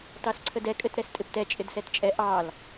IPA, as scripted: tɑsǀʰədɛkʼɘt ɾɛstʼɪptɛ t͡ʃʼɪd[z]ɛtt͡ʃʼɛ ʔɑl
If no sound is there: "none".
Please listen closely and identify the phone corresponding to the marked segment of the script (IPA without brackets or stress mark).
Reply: s